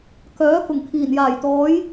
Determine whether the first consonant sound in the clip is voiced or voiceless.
voiceless